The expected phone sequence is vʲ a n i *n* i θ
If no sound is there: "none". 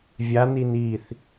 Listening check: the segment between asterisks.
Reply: n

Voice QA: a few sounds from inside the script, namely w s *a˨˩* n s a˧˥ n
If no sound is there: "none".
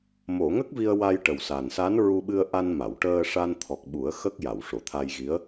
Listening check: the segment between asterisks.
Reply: a˨˩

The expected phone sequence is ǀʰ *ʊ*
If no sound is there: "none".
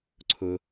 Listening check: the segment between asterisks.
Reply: ʊ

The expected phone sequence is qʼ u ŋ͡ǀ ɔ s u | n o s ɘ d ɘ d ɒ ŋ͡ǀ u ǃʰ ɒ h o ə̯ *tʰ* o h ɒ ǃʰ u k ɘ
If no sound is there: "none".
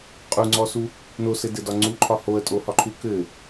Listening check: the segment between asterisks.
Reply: tʼ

